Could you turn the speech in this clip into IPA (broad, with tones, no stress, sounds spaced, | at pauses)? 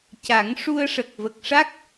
c a˨˩˦ ŋ ʂ u˧ ə̯ ʂ ə˨˩ k̚ v ə˨˩ k̚ ʂ a˦˥ k̚